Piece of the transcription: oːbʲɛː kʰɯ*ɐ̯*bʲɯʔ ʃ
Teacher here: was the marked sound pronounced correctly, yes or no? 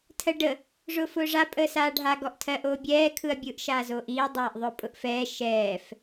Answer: yes